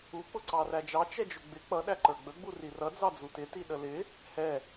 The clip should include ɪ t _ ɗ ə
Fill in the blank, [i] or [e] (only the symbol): i